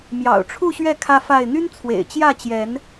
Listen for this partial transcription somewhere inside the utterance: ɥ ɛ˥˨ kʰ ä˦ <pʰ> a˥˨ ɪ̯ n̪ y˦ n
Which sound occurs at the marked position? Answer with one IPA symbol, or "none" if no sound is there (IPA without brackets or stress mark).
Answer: f